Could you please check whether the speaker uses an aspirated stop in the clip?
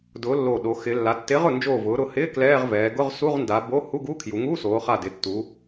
yes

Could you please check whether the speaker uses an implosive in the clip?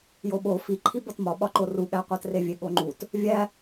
yes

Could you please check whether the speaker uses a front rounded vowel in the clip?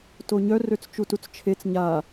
yes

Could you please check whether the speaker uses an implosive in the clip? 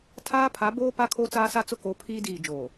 no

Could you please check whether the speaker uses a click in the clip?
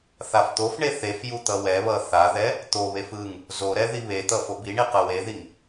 no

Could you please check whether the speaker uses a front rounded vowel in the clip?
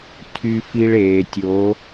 yes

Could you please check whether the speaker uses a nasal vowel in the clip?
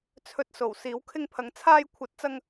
no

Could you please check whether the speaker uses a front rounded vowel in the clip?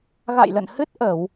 no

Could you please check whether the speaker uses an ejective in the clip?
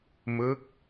no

